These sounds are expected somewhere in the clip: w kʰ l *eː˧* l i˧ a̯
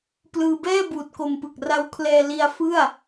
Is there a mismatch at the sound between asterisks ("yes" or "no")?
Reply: yes